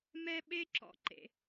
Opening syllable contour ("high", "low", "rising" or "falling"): high